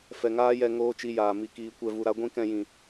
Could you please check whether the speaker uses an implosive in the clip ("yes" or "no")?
no